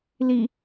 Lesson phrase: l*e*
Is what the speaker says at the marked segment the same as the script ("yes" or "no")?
no